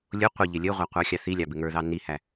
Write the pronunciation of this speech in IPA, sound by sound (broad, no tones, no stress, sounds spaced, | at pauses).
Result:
lʲ ʊ qʷ ɪ ʎ ɪ lʲ ə ʁʷ æ qʷ ɑ xʲ ɑ θ i lʲ ɑ b ɪ ŋ ə˞ ð ɑ n i h æ